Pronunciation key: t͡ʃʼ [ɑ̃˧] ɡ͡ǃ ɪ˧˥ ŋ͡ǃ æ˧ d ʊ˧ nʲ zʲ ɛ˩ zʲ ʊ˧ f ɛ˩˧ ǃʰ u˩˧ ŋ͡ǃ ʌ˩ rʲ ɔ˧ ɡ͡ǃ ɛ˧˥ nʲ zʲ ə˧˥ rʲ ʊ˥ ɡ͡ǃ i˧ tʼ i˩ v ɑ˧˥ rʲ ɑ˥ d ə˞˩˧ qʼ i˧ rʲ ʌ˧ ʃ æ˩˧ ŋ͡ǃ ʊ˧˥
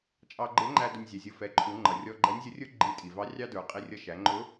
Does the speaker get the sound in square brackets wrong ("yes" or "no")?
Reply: yes